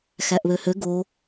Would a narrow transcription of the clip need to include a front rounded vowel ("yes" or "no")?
yes